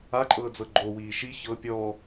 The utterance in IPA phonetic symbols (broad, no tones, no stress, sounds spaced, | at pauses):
a ǃʼ ɤː d͡z ɤ ɡ͡ǃ o w iː ʃ i ç ɤ pʲ ɔ